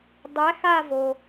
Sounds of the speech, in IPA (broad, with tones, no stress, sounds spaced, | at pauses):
dˤ æ˨˥ x a˥˧ v o˩